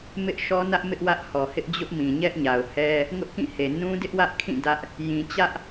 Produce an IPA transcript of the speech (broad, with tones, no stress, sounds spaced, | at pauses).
m ɪ˦ ʔ ʃ ɔ˦ n ä˦ ʔ m ɪ˦ ʔ w ä˦ ʔ h ɔ˨ h ɪ˦ ʔ d͡ʑ ʊ˦ ʔ m ĩ˨ ɲ ɛ˦ ʔ ɲ a˨ ʊ̯ h ɛ˦ | ŋ ʊ˦ ʔ k ĩ˦˨ h e˨ n ũ˦ d ɪ˦ ʔ w ä˦ ʔ kʰ ĩ˦˨ d ä˦ ʔ | j ĩ˨ t͡ɕ ä˦ ʔ